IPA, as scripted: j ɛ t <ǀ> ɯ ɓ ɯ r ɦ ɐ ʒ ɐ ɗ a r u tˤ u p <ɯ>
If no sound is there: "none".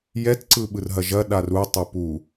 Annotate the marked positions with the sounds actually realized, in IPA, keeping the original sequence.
ǀ, u

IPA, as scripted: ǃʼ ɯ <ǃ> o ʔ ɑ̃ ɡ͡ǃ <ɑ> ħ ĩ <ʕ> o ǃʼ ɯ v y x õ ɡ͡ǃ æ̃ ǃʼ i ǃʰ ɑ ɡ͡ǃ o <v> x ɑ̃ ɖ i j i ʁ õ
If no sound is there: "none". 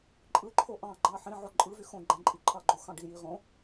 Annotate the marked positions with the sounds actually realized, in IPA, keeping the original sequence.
ǃʰ, ɑ, ʕ, none

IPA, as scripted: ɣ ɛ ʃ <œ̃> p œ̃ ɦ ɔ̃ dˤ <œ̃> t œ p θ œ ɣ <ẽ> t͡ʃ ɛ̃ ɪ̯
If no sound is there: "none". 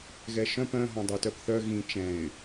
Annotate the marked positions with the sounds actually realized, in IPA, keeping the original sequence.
œ̃, œ, ĩ

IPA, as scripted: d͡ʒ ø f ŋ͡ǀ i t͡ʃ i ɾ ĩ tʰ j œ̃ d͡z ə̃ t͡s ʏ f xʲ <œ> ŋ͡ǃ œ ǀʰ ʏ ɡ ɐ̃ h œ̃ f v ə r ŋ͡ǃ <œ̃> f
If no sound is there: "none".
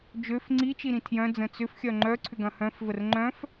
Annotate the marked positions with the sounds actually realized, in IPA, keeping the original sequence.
œ, œ̃

